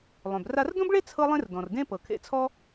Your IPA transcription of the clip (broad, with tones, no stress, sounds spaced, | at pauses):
lˠ œ̃˩ b r a˧ r d õ˥ b ɭ e˥ t͡sʰ ɤ˥ lˠ ẽ˥ r d ɔ̃˩ r d ẽ˥ p ɤ˩ kʰ ḛ˧ t͡sʰ ɔ˥